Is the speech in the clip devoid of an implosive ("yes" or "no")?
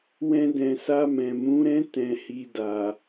yes